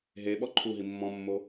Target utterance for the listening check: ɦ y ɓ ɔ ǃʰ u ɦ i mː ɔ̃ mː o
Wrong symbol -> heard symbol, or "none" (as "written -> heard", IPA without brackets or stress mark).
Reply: y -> e